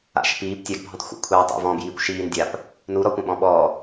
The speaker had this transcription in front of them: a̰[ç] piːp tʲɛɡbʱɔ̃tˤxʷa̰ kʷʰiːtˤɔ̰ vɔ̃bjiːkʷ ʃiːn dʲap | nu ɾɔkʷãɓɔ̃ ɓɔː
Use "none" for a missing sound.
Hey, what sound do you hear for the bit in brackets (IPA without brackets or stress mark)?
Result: ʃ